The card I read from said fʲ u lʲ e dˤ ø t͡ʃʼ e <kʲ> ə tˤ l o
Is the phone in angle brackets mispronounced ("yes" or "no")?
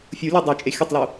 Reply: yes